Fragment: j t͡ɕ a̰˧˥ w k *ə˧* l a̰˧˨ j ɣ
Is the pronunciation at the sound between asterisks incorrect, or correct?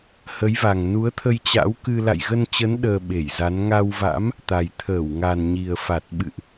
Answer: incorrect